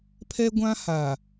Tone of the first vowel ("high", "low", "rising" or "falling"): high